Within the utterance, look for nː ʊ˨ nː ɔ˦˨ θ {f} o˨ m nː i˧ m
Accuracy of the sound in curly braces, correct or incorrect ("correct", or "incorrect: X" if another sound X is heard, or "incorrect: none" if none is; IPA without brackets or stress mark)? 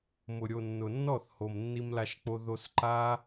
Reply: incorrect: h